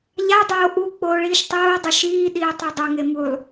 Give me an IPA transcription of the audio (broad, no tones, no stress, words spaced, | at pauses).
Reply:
ʎadˤoː ʔu k͡poːɭiːʃtˤoːdˤɵ ʃiːɗiː tˤudˤɐŋe mulˠ